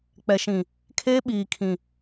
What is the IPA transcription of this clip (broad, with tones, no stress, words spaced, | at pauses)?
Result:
k͡pɛ˨ʃĩ˨ | kʰeː˦ ɓiː˨kʰĩ˨